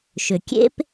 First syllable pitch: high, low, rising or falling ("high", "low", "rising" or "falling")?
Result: low